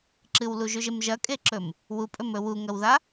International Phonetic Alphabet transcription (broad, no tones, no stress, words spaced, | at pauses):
ǁɨwluʒʉʒem ʒɐkʼeǁɵm | wupʼɵmɵ wuŋɐwða